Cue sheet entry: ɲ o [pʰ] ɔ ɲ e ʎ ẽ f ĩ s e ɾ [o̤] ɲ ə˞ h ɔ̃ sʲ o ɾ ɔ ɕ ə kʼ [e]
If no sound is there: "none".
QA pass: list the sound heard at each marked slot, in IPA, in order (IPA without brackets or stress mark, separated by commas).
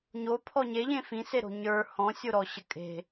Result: pʰ, o̤, e̤